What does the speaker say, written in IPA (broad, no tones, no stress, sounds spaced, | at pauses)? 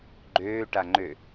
ɡ͡ǃ øː ʈ a ŋ͡ǃ ø